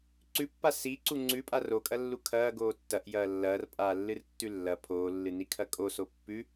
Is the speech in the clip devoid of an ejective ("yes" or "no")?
no